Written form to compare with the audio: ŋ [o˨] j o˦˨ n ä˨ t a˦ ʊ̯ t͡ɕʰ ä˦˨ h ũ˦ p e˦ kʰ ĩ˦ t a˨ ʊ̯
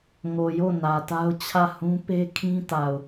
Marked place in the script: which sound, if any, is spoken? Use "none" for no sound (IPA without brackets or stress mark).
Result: o˨